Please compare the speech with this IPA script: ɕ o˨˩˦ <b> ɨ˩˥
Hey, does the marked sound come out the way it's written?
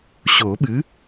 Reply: no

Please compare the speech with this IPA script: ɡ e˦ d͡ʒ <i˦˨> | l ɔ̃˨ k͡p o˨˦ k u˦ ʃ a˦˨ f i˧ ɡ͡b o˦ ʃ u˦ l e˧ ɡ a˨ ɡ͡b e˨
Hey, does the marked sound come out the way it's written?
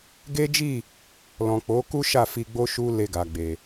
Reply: yes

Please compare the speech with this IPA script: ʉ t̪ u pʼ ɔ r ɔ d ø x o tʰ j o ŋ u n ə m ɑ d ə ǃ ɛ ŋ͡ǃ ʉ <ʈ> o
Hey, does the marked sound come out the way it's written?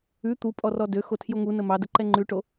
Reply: yes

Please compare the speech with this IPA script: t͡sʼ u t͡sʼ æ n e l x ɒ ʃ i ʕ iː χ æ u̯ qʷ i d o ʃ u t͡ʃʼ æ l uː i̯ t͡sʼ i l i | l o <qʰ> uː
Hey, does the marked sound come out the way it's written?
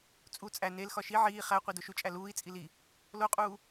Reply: no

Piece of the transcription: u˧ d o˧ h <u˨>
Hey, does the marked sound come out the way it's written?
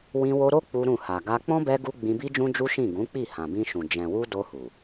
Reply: yes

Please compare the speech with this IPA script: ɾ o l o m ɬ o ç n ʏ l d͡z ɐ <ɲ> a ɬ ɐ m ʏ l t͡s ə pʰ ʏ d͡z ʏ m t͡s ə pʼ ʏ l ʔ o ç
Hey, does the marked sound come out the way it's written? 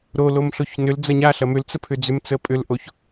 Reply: yes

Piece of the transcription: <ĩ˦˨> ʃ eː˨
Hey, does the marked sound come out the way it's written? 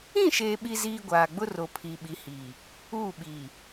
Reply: yes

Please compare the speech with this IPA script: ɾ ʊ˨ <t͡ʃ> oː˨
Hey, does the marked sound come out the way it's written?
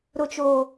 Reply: yes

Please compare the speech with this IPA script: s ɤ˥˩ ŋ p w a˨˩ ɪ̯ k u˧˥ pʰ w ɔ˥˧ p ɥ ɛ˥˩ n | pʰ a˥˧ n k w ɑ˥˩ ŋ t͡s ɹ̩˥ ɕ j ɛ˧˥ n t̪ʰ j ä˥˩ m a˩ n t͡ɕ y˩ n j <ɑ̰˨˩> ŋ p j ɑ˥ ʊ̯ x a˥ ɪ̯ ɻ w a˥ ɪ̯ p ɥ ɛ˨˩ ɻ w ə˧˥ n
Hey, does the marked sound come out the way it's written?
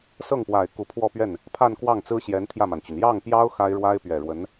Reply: no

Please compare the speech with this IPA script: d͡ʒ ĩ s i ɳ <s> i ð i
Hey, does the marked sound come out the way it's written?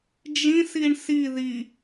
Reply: yes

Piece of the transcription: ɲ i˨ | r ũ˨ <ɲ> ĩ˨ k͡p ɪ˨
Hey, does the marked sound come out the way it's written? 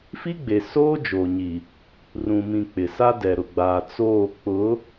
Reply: no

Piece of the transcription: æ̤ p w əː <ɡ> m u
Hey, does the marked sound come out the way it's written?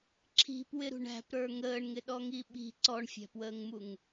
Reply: no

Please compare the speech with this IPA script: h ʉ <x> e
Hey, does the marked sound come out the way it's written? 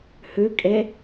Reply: no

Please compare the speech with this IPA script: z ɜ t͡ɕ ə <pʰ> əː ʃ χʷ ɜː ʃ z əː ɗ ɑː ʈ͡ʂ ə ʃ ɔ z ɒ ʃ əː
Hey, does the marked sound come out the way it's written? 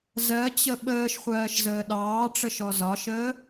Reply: no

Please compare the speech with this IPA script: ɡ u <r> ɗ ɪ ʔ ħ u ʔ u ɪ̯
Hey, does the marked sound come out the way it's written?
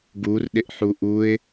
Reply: yes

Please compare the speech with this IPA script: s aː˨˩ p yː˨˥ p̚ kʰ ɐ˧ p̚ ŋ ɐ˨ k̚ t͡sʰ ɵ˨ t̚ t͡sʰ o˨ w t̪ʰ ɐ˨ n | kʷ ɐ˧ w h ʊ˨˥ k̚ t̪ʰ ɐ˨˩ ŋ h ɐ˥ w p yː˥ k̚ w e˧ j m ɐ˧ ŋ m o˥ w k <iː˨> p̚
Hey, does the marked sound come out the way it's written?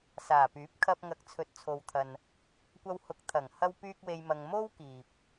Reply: yes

